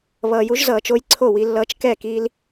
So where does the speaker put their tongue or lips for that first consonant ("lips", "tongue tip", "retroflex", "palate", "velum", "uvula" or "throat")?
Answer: lips